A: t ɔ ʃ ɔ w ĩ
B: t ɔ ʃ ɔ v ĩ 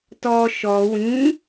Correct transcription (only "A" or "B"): A